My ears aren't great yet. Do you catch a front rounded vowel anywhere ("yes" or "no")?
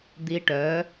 yes